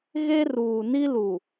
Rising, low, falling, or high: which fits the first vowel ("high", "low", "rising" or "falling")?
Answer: high